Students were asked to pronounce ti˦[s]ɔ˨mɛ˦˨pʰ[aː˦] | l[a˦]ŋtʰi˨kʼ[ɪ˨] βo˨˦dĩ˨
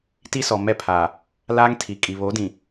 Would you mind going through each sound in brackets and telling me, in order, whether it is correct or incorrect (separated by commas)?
correct, incorrect, incorrect, incorrect